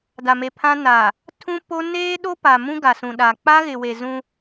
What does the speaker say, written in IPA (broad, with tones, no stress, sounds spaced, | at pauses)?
d a˨ m e˨ pʰ ã˦ n aː˨ | tʰ ũ˦ p o˦ n eː˦ ɗ o˦ p a˨ m ũ˦ ɡ a˨ s ũ˨ ɗ a˨ k͡p a˦ ɣ ɪ˨ w e˨ z ũ˦